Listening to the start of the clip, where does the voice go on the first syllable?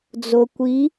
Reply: low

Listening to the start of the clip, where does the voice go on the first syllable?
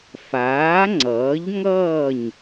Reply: rising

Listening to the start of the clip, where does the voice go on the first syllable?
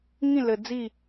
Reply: falling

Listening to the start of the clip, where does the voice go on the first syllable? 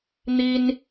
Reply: high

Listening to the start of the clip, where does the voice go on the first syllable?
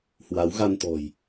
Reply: rising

